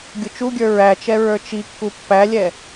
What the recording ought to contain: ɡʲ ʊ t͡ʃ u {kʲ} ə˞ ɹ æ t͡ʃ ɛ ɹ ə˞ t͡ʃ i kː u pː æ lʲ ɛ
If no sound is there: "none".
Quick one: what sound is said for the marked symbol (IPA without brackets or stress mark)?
ɡʲ